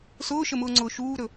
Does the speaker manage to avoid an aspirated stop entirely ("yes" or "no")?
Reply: yes